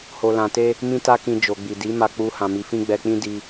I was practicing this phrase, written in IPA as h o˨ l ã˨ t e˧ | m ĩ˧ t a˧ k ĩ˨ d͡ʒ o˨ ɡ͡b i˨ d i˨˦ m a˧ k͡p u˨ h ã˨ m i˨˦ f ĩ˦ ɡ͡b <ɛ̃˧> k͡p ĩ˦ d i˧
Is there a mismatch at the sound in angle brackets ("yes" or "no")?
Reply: yes